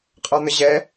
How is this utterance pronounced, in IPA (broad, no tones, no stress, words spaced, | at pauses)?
qʼɒn̪əʑɛ